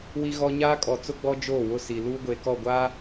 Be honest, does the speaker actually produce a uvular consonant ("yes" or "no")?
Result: no